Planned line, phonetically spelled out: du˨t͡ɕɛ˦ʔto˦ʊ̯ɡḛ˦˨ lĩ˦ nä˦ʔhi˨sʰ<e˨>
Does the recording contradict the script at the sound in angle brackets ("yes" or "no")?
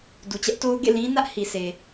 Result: no